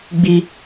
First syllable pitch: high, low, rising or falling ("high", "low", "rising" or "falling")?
high